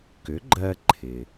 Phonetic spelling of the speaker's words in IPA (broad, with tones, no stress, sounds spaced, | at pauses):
k ʏ˩˥ ɡ͡ǃ ɜ˧ ǃʰ ɪ˩